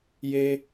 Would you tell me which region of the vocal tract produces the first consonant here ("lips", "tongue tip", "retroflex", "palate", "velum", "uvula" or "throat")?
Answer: palate